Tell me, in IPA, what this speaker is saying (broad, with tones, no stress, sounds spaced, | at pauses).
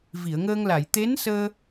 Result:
v i˨˩˨ ə̯ ŋ əː˧ ŋ l a˨˩˨ j t̪ e˧˥ n s əː˧